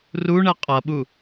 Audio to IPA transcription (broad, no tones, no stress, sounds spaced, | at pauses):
r u ɳ ɛ qʼ ʌ ɓ u